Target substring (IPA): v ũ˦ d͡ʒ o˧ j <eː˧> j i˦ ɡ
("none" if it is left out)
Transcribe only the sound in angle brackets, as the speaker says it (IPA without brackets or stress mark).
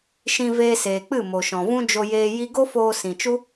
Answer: eː˧